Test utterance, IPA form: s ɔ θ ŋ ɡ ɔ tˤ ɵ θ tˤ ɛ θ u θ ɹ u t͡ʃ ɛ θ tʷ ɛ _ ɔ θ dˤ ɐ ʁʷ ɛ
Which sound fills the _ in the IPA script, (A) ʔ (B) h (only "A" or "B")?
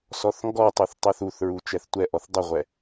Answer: A